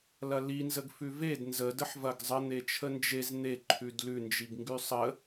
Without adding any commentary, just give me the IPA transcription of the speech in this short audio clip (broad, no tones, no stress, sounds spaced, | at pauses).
l ɐ l i n z ə ɡ f ʉ v e d n z ə d ə ħ v ɐ ɡ zˤ ə n̪ e t͡ʃʰ ə n d͡ʒ e z n̪ e ǃʰ ʉ d l ʉ n d͡ʒ i ɡ ŋ ɡ ʉ sˤ ə